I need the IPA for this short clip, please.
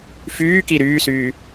fyːki ɾyːsyː

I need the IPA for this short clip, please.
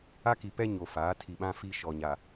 a˦ki˨pɛ˦ ɲo˨faː˨˦tʰi˨ɓã˦ fi˦ʃɔ˨ɲa˨

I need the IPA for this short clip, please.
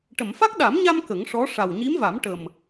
ʈə˨˩˨mfa˦˥k̚ɗa˨˩˦mɲa˧m kə˨˩˦ŋʂɔ˧˥ ʂa˨˩wɲi˧˥mva˨˩˦m ʈə˨˩m

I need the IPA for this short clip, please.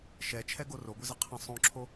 ʃɛt͡ʃʰɛɡo roɡʷɘzə qʰə̃ sˤõǁʰo

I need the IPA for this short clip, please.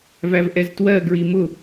vævʔɛztwɜ ɡɹimʊ

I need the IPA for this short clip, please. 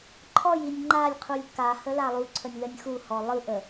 ǃʰɔj inʲŋ͡ǃalʲqʰulʲ ka həlalˠuǀʰənʲ lənʲxuhɔ lˠɯʔə

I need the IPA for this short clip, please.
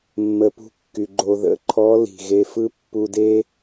mːə˨pṳ˧kːy˨ ɡ͡ǃo˨ðə̰˨˦ǃʰɔ˨˦ li̤˨ɣe˧fɯ˦ pːu˧de˦

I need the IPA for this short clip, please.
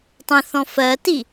tˤə̃θɔ̃ fɜti

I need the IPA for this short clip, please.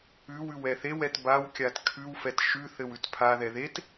ʉwʉw ɛθewɛt bawkʲat kʰʉwfɛt ʃʉθɘw ʉtpʰaðɛ ðet

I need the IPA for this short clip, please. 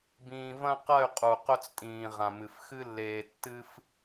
bĩː˧ vɐ̃˦qɐ˦˨y̯ qʼu˨ qɵ˦t͡stʼĩː˨ʁã˨mɨ˨f xɨ˧lːeː˨tːɨ˧f

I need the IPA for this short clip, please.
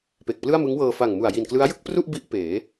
pe˨˩k̚plɯ˥˩a̯mɯ˦˥ŋwɤː˧ fa˨˩ŋmu˨˩a̯ji˨˩nklɯ˦˥a̯ jɯ˥˩k̚pru˥˩ʔ bi˥˩ʔpeː˩˦

